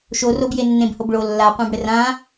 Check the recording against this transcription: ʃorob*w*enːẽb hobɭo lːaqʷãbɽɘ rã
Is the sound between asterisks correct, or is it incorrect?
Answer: incorrect